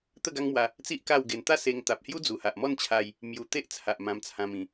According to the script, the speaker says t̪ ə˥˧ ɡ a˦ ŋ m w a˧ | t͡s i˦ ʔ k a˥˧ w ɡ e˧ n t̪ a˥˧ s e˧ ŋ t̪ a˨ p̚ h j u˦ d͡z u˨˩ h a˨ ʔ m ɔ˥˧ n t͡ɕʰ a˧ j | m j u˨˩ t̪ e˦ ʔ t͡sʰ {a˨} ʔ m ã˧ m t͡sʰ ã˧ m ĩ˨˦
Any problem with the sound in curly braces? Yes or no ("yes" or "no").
no